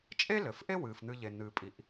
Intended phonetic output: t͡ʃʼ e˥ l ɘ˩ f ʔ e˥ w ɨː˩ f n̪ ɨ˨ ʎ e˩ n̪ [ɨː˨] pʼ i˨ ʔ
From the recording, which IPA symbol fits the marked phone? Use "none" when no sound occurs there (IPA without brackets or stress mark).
ɨː˨